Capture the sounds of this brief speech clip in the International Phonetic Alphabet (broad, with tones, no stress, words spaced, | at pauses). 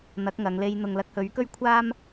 n̪ɐ˨˥k̚ŋɐ˨˧ŋle˧j n̪ʊ˨ŋlɐ˧k̚hɵ˨˥ɥkɵ˥ɥ kʷʰaː˥m